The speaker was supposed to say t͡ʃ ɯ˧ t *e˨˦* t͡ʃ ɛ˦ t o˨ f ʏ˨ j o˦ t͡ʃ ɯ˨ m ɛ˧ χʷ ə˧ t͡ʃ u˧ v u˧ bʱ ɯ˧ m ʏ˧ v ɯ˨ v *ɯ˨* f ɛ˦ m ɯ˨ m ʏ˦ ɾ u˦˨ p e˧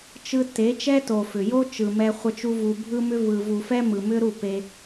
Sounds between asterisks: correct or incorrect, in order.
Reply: correct, incorrect: u˨

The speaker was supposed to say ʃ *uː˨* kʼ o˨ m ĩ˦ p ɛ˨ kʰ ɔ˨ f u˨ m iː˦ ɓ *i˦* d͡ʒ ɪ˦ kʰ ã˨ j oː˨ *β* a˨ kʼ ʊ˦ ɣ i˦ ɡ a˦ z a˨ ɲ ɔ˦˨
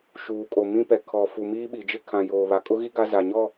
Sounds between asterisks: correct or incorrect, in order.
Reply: correct, incorrect: i˨, correct

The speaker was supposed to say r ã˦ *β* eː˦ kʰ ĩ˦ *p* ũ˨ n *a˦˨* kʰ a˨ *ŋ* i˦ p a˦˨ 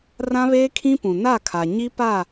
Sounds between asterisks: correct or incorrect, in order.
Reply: correct, correct, correct, incorrect: ɲ

